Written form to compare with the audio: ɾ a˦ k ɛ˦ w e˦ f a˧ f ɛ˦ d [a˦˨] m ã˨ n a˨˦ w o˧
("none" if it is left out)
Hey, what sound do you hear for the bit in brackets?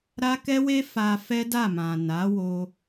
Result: a˦˨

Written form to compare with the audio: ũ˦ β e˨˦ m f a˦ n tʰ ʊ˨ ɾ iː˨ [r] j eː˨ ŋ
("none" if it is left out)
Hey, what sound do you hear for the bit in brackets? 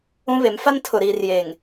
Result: r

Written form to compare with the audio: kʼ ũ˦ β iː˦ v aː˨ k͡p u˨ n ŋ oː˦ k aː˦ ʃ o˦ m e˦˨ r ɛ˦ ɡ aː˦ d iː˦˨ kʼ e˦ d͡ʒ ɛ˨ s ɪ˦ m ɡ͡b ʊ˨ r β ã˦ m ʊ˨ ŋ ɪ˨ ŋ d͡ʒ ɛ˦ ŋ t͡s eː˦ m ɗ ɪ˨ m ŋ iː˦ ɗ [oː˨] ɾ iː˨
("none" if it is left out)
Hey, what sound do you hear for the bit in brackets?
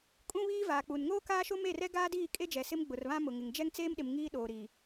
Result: oː˨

